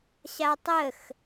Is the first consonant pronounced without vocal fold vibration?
yes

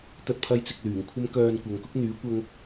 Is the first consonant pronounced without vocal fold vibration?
yes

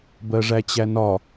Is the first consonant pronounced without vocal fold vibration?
no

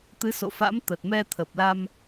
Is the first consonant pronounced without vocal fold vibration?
yes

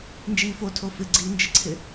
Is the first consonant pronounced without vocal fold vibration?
no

